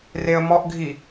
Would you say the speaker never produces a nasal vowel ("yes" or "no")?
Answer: yes